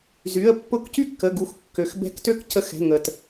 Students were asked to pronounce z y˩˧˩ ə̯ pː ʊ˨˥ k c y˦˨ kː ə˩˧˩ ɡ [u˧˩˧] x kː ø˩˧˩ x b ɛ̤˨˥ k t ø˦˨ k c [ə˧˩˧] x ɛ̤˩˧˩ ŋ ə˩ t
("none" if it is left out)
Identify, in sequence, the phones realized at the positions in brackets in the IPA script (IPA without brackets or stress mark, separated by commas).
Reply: u˧˩˧, ə˨˥